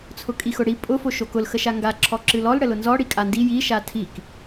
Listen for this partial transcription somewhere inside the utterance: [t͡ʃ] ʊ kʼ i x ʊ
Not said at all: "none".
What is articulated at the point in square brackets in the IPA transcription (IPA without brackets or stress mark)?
t͡sʰ